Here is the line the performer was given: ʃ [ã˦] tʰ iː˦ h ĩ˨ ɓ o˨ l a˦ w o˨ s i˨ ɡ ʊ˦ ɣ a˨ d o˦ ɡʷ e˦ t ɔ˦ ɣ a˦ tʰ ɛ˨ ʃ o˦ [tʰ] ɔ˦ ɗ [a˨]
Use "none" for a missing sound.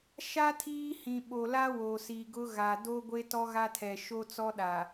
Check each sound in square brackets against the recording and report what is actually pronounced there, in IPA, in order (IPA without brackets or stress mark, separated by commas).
a˦, t͡s, a˨